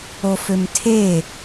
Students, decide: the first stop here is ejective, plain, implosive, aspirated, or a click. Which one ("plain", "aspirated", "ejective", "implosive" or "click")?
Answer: aspirated